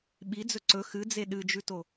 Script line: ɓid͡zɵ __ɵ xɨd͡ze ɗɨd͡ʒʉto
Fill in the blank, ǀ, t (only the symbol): ǀ